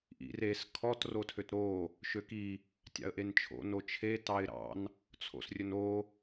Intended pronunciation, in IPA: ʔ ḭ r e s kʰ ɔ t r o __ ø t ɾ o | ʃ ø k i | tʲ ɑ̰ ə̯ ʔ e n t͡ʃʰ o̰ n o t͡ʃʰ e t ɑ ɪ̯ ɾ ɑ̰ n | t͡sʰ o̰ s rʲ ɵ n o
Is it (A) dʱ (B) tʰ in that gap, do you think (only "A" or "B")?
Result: B